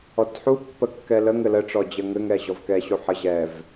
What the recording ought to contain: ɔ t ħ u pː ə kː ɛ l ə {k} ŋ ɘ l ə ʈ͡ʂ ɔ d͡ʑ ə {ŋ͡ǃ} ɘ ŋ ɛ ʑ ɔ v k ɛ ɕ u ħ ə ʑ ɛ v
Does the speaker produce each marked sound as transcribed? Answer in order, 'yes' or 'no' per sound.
no, no

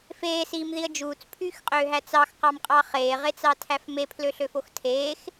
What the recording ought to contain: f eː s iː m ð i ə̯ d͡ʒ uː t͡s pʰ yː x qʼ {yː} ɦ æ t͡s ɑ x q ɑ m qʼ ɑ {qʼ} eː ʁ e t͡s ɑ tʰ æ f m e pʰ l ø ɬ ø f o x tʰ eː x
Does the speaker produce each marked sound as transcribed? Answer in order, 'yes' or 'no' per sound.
no, no

